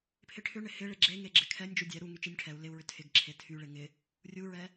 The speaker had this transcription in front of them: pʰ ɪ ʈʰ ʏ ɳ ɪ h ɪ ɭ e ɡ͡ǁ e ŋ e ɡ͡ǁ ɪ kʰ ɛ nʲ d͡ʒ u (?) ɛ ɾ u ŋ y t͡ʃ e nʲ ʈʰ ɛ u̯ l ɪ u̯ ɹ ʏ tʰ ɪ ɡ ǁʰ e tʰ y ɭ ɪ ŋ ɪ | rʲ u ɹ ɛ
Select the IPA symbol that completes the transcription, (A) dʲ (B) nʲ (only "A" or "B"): A